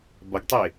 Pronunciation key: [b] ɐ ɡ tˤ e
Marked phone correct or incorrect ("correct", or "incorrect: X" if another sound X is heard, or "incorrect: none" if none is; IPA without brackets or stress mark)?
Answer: correct